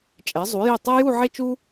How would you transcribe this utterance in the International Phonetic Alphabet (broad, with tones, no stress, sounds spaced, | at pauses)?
t͡ʃʼ ɛ˩˧ zˤ u˩˧ j e˧˩ tˤ ɛ˥ j u˥˧ ʕ e˥ t͡ʃ u˥